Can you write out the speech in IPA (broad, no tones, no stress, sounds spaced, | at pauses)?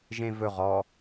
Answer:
ʒ ẽ v ɵ ʁ ɔ